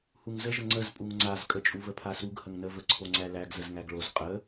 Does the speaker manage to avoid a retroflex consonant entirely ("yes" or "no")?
no